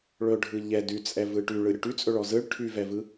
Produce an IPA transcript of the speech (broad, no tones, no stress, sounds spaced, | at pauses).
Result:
ɭ ɵ ɖʱ ɯ ʎ ɛ d y t͡sʼ ɛ v ɯ ʈ y ɭ ɯ ɾʲ ɵ ʈ y t͡sʼ ɵ ɭ ɔ z ɯ ɭ ʈʰ y v ɛ v ɯ